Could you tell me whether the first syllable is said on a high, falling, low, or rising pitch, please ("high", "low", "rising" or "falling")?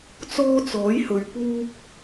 high